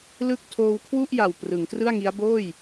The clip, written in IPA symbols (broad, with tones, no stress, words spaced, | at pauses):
lɯ˥˩k̚ tʰoː˧wkʰwu˥˩ʔja˨˩w prɯ˩˦ŋ trɯ˥˩a̯ŋi˦˥a̯ boː˥˩j